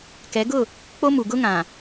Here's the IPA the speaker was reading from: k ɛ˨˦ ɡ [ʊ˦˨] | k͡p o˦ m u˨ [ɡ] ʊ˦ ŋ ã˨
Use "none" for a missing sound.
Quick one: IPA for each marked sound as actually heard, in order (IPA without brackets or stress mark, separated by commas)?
ʊ˦˨, ɡ